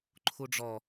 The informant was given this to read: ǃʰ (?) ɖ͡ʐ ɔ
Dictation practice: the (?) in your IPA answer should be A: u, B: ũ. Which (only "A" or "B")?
A